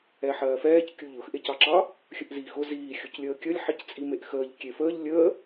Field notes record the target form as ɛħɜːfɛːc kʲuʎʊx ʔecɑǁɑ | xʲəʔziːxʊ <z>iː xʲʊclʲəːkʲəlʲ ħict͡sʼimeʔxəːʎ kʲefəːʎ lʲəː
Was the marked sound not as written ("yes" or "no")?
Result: no